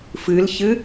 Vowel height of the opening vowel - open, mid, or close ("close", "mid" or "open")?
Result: close